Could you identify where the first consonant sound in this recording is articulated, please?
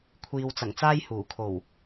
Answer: velar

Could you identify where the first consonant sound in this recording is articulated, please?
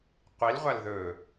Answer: uvular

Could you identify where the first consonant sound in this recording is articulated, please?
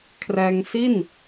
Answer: velar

